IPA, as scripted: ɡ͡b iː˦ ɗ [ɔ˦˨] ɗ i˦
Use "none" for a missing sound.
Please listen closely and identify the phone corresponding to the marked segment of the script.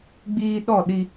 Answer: ɔ˦˨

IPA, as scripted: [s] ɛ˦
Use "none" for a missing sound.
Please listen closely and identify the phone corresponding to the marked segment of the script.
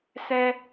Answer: s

